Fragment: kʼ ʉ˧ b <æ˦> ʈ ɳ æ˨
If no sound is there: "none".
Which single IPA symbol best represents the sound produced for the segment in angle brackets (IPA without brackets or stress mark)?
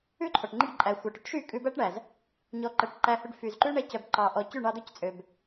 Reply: æ˦